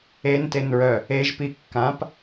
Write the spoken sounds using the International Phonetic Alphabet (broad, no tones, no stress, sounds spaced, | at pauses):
e n t e n ɹ œ | e ʒ p i kː ã p